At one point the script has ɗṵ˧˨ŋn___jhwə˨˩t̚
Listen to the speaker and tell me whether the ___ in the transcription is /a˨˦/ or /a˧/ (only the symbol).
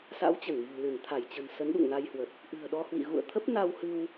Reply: a˧